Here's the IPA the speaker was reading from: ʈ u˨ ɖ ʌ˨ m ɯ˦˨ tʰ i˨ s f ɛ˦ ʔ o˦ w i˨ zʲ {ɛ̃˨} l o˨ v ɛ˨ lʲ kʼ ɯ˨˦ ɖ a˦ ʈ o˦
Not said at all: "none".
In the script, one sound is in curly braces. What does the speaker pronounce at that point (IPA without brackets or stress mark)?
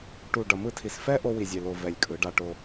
ɛ˨